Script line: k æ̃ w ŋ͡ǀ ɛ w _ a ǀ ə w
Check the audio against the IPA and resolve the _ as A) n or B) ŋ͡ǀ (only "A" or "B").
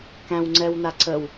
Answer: A